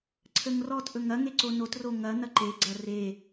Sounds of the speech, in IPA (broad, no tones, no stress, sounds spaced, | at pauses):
ǀʰ ə ŋ r ɔ t ʔ ɵ ŋ ɐ ŋ e ǀ o n o t r o ŋ ɐ n̪ ɐ ǃ e ɡ͡ǀ ɐ r e